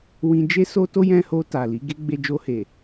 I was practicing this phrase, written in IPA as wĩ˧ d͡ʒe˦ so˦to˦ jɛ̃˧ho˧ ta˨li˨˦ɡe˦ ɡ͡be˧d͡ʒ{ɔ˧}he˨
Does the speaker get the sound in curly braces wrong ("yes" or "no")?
yes